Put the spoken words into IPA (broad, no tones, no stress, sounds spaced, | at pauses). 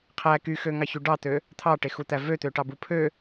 qʰ æ k y x ø ŋ ɑ ç y ɖ ɑ t̪ ø | t̪ʰ ɑ ʈ e x u t̪ æ v ø t̪ ø ʈ ɑ b u pʰ ø